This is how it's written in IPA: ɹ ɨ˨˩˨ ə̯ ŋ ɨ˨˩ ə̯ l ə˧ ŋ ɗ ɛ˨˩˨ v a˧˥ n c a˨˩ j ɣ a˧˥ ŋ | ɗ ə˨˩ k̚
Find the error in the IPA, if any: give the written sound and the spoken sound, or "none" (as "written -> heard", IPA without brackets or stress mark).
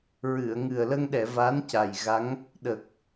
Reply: none